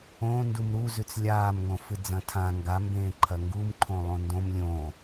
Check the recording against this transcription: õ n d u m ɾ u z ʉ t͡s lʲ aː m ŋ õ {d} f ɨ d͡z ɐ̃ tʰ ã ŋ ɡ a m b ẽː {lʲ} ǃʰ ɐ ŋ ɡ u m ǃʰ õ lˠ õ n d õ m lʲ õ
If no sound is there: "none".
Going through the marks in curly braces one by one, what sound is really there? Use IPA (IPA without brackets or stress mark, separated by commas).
none, none